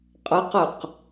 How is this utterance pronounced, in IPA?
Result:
qʼ ʌ q ʌ q

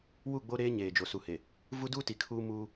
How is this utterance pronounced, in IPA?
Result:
w u˦˨ ɡ͡b o˦ ɾ eː˦ ɲ eː˨ d͡ʒ o˨ s u˨ h e˨ | v u˦ d uː˦ t i˨ kʰ uː˦ m uː˦

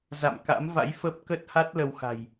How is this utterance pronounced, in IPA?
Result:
z a̰˧˨ m k a̰˧˥ m v a̰˧˥ j f ə˦˥ p̚ k ə˦˥ t̚ h a˦˥ t̚ l ə˧ w x a̤˨˩ j

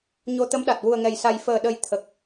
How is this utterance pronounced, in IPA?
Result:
ɲ o˧ t̪ ə˧˥ m ɗ a˨˩ t̚ w u˨˩ ə̯ ŋ ɛ˨˩ j s a˨˩ j f əː˨˩ ɗ ə˨˩ j t̪ʰ ə˨˩ k̚

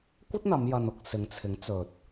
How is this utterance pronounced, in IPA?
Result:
kʷ ɐ˥ t̚ n̪ ɐ˨˧ m j ɐ˧ n ʊ˧ k̚ s ɪ˨˧ ŋ t͡sʰ ɪ˨˥ ŋ t͡s ɵ˨ t̚

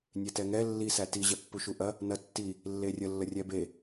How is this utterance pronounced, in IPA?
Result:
nʲ e t ɛ ŋ ɛ lː i s æ t i ʑ ɛ pː u ʃ u ʔ ɐ | n ɐ tː i | lː e rʲ ə lː ə rʲ ɛ b e

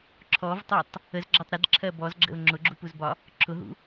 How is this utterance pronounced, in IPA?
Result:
ǁʰ ɔ v tˤ ɜ tˤ | ə z ɡ͡ǁ ɒ tˤ ɾ ə d ǁʰ ɜ b ɔ z ɡ͡ǁ ə̰ ʊ̯ ŋ͡ǁ ʊ ɡ͡ǁ u p u z b ɒ | ǁʰ ʊ ɦ ṵ

